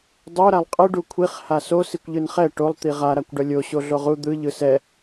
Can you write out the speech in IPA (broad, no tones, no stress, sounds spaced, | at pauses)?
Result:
dˤ o ɾ a lˠ qʼ ɯ ɖ u kʷʰ i χ h a s o s i kʷ ʎ ɯ n χ ɛ ʈ o lˠ t̪ i ʁ a ɾ a kʷ ɖ ʌ lʲ o ɕ o ɮ o ʁ u d̪ ɯ ʎ ɯ s ɛ